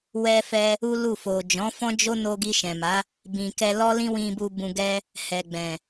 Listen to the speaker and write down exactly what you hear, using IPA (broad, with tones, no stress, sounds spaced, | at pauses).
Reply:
w ɛ˧ f ɛ˧ | u˦ l u˦˨ f o˨ d͡ʒ ɔ̃˨˦ f ɔ̃˦ d͡ʒ o˦ n o˧ ɡ i˧ ʃ ɛ̃˨ m a˨˦ | b ĩ˨ k ɛ˧ l ɔ˦ l ĩ˦ w ĩ˧ b u˧ b ũ˧ ɡ ɛ˦ | h ɛ˨ ɡ͡b ɛ̃˨